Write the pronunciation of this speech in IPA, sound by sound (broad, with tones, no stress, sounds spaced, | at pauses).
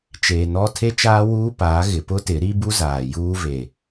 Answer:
t͡ʃ eː˨ n ɔ˦ tʰ e˦ t͡ʃ aː˦ w uː˦ p aː˨˦ ɣ ɪ˨ p ʊ˦ t ɪ˨˦ ɾ i˦ b u˦ z aː˨ j uː˦ v e˨